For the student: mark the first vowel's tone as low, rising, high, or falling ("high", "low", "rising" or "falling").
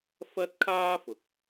high